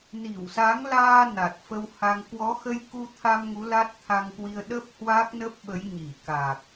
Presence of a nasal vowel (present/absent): absent